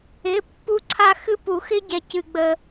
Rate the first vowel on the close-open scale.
close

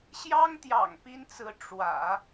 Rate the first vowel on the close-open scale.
open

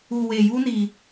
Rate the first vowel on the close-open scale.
close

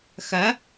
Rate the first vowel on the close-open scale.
open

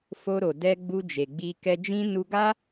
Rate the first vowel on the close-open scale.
mid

